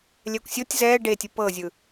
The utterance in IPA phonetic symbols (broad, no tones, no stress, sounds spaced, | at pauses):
lʲ ɛ kʷ sʲ o tʲ z ɛː ɖ e tʲ ɯ p ɤ zʲ ɯ